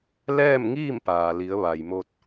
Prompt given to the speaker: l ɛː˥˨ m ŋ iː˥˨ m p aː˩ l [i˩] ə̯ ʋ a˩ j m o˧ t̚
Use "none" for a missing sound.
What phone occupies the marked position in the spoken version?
i˩˧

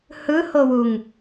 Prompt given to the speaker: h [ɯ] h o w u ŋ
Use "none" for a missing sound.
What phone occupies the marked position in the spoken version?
ɯ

